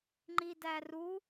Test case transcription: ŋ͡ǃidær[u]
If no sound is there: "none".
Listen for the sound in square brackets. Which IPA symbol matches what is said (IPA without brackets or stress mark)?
u